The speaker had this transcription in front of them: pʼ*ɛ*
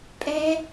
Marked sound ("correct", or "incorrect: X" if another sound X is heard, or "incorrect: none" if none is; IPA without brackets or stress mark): correct